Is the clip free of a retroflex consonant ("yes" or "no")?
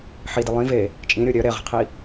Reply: yes